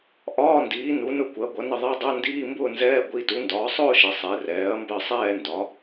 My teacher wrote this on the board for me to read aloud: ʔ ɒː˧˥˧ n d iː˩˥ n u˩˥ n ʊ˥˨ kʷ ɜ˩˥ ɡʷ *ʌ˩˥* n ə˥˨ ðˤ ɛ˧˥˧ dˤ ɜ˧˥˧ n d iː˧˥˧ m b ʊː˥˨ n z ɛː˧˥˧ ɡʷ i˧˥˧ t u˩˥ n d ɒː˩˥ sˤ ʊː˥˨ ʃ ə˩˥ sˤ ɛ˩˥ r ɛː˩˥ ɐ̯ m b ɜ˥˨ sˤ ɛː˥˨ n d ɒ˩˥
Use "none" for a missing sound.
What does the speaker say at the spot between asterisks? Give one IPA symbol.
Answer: ʌ˩˥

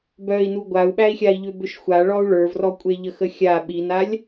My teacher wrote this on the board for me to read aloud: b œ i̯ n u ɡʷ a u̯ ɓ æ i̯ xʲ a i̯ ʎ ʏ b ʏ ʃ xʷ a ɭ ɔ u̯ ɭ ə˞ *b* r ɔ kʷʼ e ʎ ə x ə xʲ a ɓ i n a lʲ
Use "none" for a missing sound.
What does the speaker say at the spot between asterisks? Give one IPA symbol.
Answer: v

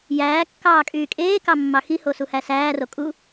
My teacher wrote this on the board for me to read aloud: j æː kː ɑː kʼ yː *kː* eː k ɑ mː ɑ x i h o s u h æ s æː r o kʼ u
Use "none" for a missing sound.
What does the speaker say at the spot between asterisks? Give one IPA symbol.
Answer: kʼ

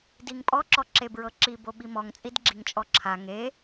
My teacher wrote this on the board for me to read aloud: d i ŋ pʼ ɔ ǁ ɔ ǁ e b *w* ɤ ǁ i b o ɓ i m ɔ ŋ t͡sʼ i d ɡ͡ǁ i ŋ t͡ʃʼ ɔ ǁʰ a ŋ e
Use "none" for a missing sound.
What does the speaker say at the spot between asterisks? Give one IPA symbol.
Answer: ɹ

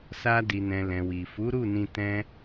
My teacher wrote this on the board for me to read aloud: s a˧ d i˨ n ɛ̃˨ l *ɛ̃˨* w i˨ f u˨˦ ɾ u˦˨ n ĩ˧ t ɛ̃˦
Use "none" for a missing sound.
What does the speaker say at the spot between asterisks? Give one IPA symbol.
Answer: ɛ̃˨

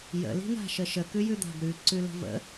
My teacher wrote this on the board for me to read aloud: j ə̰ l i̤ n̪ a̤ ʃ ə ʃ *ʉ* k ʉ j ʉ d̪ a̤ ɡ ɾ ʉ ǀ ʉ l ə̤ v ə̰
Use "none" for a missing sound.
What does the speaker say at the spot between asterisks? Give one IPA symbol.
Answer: ə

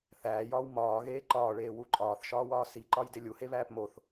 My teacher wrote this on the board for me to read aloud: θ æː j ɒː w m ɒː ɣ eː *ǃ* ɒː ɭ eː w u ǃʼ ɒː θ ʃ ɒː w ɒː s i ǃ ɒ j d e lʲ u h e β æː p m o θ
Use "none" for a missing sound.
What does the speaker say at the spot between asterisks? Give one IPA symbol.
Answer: ǃ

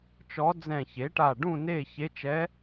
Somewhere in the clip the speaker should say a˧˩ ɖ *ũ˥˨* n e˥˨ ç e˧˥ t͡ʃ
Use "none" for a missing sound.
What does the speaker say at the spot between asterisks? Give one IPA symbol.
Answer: ũ˥˨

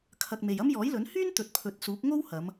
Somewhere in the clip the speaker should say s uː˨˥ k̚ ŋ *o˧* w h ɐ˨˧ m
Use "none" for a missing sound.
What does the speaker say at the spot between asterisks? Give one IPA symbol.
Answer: o˥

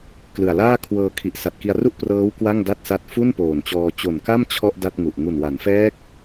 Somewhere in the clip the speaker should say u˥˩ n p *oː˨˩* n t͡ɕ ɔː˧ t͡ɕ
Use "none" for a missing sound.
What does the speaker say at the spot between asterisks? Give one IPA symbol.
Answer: oː˨˩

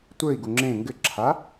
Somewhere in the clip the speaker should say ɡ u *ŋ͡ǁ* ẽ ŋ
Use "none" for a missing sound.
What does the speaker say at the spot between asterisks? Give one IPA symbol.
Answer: ŋ͡ǁ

